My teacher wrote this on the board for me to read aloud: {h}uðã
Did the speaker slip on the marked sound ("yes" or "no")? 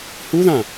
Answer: no